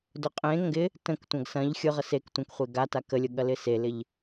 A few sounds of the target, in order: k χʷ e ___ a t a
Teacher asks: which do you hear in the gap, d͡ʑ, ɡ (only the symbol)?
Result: ɡ